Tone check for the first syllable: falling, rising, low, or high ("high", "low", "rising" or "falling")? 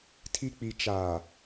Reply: high